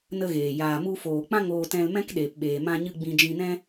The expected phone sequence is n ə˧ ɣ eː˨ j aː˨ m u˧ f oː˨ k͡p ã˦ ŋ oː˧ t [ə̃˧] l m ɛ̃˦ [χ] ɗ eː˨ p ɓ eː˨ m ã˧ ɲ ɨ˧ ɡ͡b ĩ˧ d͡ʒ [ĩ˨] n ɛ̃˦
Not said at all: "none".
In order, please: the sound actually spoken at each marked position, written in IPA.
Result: ɛ̃˧, k, ĩ˧

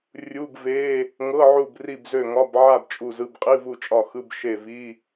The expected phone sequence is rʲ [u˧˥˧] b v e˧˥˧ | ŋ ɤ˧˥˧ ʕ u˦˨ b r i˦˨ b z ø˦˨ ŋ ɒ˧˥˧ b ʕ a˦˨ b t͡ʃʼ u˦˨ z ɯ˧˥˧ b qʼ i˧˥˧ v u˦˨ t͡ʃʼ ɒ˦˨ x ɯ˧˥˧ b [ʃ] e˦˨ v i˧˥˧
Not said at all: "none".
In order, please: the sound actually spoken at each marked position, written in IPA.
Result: u˧˥˧, ʃ

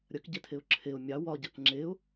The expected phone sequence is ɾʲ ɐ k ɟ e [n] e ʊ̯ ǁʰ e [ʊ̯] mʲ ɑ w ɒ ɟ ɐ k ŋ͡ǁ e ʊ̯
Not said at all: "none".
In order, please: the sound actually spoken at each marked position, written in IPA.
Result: tʰ, ʊ̯

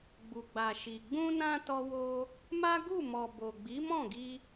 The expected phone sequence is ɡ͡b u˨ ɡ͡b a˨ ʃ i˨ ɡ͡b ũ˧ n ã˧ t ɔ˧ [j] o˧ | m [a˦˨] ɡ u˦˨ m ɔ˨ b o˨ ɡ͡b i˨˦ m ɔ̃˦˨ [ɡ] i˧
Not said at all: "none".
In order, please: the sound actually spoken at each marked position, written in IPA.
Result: w, a˦, ɡ

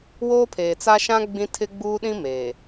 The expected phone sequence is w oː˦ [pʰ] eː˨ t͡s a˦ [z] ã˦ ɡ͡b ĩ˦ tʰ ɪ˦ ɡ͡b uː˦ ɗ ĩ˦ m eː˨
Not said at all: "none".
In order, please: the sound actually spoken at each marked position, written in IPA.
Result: pʰ, ʃ

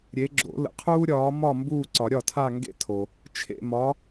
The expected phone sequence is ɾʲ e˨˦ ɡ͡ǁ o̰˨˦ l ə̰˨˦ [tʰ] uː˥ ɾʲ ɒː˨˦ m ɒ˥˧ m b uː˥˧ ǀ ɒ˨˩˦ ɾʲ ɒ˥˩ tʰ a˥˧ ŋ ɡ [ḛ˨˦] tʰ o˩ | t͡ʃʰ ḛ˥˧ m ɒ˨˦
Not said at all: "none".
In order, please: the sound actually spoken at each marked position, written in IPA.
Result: qʰ, ḛ˥

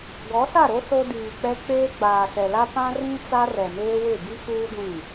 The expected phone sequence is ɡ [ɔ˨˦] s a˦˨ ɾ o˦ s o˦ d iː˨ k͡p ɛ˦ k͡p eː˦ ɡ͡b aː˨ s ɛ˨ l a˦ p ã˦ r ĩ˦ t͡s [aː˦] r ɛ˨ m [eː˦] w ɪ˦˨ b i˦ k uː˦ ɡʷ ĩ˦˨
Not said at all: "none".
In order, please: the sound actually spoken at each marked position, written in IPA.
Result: ɔ˨˦, a˦, eː˦

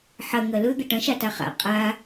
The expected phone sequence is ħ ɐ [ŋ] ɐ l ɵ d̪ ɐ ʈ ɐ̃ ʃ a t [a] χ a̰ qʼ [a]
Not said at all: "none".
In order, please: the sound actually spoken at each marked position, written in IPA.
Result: ŋ, a, a

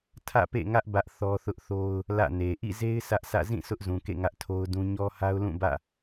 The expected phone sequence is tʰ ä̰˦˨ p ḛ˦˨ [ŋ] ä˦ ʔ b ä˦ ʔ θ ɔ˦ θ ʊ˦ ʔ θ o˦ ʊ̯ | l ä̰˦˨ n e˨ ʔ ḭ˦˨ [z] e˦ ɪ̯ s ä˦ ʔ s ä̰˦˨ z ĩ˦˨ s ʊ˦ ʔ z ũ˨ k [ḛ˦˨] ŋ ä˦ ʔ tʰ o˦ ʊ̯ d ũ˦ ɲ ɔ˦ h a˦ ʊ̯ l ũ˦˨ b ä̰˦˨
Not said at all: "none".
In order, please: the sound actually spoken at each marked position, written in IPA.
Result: ŋ, z, ḛ˦˨

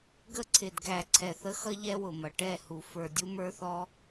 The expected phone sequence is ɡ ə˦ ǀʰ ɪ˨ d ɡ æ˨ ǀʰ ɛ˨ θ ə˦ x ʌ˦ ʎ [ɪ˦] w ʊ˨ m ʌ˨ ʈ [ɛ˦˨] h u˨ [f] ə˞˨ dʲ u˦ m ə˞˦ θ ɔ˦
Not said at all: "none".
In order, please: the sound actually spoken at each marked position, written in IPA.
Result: ɛ˦, ɛ˦˨, f

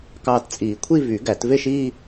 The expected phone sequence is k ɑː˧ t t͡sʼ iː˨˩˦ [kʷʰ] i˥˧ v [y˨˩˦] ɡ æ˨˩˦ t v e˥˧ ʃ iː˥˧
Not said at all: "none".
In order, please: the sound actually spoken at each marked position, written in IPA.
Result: kʷʰ, y˨˩˦

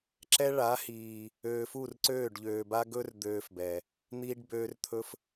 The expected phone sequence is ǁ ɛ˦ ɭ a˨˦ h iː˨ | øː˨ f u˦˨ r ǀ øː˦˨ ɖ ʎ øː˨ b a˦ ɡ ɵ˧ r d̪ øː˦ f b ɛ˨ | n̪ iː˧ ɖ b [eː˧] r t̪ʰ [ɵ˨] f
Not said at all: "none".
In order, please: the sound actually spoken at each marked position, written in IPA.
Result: øː˧, ɵ˦

